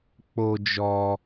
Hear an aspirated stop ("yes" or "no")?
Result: no